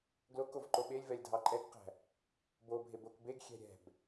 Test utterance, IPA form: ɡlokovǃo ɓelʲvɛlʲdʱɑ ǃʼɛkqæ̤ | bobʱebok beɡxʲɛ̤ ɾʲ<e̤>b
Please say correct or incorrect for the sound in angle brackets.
incorrect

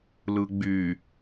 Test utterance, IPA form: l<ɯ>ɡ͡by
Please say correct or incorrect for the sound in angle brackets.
correct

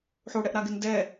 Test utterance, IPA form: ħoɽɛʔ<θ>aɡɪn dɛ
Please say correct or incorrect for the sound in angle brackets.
incorrect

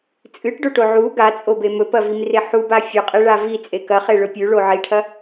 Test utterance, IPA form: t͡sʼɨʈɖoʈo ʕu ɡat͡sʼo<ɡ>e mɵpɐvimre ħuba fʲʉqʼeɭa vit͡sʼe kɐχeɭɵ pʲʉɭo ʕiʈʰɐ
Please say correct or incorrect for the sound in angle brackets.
incorrect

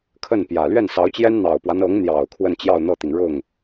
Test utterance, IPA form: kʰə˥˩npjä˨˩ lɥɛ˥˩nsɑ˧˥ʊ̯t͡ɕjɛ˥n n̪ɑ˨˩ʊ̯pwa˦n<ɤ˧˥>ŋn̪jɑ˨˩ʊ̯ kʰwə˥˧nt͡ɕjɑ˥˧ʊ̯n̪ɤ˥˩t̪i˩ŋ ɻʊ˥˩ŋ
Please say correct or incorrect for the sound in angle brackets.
correct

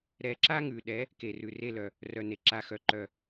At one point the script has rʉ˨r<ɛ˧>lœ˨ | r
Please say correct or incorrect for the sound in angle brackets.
incorrect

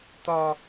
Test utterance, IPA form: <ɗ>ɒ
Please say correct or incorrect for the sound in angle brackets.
incorrect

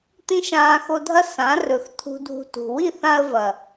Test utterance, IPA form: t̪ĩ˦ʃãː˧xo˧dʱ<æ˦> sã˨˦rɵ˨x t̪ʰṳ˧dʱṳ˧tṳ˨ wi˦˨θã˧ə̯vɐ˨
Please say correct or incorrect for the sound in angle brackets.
incorrect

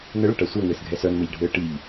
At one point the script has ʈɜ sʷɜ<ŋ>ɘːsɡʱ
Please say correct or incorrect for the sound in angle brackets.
correct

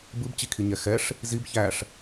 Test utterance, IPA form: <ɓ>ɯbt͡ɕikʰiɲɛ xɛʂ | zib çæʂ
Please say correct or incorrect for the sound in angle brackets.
incorrect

